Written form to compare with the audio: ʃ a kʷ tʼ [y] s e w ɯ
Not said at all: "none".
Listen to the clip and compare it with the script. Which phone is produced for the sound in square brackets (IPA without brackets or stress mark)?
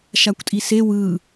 i